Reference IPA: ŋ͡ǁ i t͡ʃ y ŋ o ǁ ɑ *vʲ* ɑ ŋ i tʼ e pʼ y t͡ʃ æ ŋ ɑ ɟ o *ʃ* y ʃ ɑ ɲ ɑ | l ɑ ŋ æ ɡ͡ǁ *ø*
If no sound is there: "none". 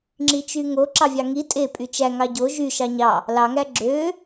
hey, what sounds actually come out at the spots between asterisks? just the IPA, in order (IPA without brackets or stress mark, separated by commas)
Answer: vʲ, ʒ, ø